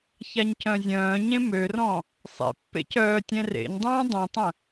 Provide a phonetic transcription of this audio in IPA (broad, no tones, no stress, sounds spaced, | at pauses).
ç a ɲ c œ̃ zʲ œ̃ː ɲ ẽ m ø r ɔ̃ | sˤ ḛ pː ḛ c œː tʲ ɛ̃ r ḛ ɲ dˤ œ̃ː dˤ ũ tˤ ə̃